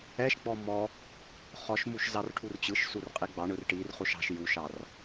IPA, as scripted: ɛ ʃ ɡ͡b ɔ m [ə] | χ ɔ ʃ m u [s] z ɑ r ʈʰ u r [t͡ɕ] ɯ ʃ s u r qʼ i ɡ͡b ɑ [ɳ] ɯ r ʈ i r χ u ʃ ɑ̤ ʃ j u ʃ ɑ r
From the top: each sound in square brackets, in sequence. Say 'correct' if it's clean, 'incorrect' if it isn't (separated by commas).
incorrect, incorrect, correct, correct